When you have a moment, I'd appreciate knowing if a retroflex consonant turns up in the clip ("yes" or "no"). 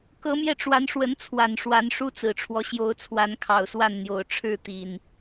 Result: yes